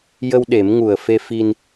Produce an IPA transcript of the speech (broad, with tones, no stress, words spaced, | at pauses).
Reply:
jə˧wɗe˨˩˦mŋu˨˩ə̯ fe˧fi˧n